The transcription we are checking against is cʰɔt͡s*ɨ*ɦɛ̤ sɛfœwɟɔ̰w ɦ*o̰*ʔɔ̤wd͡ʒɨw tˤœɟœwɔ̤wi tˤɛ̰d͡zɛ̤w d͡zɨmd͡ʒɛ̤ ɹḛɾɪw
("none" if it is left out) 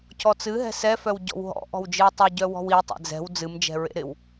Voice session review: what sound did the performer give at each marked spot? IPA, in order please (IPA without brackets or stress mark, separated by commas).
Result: ɨ, ɔ̰